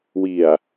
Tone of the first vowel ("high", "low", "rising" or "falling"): low